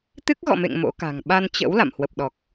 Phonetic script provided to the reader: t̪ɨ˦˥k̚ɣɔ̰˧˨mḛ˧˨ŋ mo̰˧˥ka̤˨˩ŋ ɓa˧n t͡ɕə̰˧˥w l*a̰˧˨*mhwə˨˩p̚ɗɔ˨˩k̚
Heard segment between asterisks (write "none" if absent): a̰˧˨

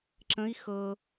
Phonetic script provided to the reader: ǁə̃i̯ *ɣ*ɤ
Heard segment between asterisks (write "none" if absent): x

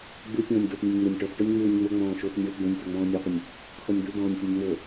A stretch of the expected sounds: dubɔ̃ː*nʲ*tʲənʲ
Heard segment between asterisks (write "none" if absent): nʲ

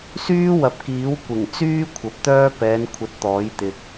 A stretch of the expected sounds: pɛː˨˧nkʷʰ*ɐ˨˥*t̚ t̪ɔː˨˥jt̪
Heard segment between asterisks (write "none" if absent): ɐ˨˥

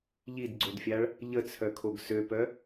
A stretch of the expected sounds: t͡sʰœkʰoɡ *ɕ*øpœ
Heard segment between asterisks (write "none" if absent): s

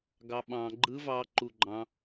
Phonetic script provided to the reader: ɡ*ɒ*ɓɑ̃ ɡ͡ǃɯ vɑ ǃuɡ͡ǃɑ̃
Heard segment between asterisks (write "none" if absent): ɑ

